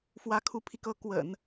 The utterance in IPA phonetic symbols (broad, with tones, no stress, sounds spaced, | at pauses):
f w ä˧˥ kʰ u˧˥ pʰ i˧ k ɤ˧˥ k w ə̰˨˩˦ n